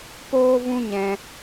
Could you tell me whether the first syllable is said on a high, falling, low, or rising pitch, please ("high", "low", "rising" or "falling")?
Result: high